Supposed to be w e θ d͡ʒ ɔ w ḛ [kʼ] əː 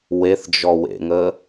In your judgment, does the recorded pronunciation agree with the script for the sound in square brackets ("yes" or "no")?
no